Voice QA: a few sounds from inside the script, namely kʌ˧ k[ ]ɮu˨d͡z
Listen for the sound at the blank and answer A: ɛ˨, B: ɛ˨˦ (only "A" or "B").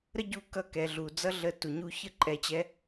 A